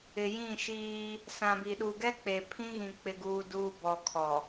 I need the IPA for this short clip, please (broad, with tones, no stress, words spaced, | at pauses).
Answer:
ɪ˨jĩ˦˨ʃiː˦ | sã˨bi˨ɗuː˨ ɡɛ˦ k͡pe˨pʰĩ˦ɣĩ˨ k͡pɪ˨ɡuː˨duː˨ bɔ˨kʰɔ˨